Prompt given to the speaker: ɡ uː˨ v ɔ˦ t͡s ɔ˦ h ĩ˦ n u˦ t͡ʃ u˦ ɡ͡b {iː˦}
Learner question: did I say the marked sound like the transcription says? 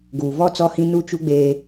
no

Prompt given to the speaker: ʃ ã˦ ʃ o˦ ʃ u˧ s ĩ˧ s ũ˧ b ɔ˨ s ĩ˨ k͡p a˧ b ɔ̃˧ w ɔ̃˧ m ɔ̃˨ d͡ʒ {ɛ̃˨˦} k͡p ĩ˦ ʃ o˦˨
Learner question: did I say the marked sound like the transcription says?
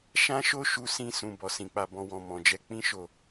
no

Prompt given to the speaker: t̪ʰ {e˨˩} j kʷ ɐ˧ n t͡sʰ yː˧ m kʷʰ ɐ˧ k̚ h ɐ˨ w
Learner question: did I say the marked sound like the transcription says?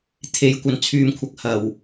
no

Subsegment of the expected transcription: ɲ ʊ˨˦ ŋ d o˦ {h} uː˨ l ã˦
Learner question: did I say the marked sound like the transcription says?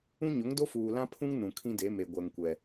no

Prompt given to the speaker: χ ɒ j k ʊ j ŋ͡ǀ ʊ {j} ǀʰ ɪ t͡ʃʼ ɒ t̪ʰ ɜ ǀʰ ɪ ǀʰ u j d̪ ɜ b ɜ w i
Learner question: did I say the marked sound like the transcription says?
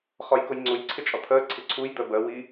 yes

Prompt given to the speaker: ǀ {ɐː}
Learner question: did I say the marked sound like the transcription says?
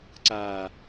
no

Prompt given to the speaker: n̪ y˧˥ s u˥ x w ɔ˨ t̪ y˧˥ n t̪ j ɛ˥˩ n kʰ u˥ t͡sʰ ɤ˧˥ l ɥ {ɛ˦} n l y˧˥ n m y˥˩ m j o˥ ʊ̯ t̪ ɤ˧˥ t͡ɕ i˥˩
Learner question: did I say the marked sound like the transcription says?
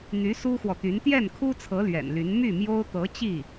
no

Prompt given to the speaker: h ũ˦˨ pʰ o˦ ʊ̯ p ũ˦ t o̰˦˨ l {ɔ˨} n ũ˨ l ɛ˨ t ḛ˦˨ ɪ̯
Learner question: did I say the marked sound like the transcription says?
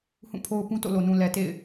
no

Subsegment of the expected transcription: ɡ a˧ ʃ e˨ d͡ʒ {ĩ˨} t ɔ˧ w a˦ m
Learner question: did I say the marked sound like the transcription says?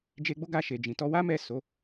yes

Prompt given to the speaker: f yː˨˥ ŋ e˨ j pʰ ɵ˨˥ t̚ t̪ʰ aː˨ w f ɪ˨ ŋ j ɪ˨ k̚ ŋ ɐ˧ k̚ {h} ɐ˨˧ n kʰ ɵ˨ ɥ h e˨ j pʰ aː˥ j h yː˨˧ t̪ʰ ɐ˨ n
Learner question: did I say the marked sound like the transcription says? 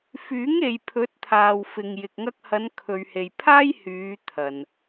yes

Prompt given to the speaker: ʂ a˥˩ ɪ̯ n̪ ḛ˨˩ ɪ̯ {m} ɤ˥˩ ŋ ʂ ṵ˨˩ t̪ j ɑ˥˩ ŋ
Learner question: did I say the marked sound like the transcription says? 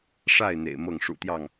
yes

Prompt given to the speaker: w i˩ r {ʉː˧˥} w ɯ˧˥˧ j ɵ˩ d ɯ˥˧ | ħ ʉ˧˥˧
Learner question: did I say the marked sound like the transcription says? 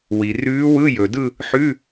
yes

